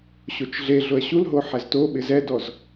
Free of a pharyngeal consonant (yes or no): no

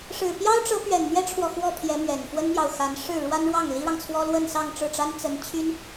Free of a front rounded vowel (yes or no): no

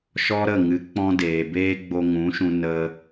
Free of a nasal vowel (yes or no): no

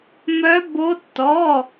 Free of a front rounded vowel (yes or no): no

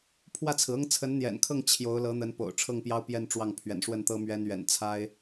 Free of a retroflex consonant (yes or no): no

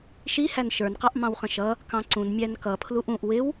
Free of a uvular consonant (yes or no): no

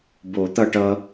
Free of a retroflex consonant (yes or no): no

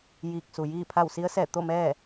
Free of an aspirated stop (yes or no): no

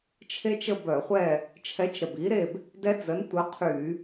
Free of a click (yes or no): yes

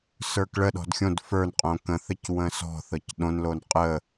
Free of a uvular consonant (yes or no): no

